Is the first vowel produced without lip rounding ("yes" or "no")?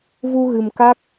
no